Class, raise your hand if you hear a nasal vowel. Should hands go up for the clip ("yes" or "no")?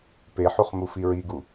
no